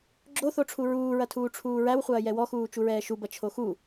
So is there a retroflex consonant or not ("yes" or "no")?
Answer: yes